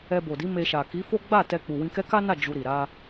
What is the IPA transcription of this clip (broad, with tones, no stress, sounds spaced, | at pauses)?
ɛ˧ b o˨ d i˨˦ m e˧ ʃ a˨ k i˨˦ f o˦ ɡ͡b a˦˨ t ɛ˧ k͡p u˨ w ĩ˧ k ɛ˦ k a˦ n a˦˨ d͡ʒ u˧ ɾ i˨ ɾ a˧